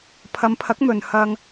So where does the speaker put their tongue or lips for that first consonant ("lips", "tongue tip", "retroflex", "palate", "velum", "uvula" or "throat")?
lips